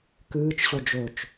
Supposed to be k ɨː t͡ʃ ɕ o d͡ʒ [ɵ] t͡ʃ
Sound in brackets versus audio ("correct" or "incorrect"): correct